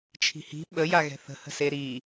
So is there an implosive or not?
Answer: yes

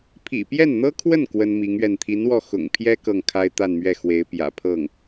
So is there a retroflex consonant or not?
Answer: no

